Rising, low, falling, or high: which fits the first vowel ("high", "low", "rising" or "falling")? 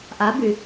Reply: rising